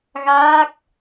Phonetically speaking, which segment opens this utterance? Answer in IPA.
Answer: ɣ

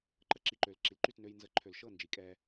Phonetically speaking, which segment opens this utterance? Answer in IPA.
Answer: ǃ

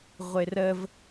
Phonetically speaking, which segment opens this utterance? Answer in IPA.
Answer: ʁʷ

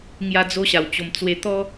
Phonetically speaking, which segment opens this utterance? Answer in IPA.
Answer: ŋ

